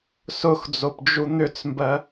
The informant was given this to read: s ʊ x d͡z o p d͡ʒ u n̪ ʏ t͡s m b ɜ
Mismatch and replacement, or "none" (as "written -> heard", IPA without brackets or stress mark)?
none